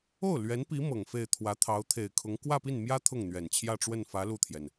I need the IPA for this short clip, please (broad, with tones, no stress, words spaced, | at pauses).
o˥˩ʊ̯lɥɛ˧˥npi˧˥ mɤ˨˩ŋfe˥˩ɪ̯ t̪ʰwä˧˥t̪ʰɑ˧˥ʊ̯t̪ʰe˨˩ɪ̯kʰʊ˧˥ŋ kwä˥˧pi˥˩nmjä˥ t̪ʰʊ˥˩ŋn̪ɥɛ˨˩n t͡ɕʰjä˥˧ʈ͡ʂwə˥˩nfä˧˥ lu˥˩t̪ʰjɛ˩n